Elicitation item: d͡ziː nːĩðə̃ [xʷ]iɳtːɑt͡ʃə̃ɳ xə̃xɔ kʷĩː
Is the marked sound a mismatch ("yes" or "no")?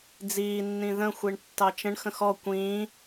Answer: no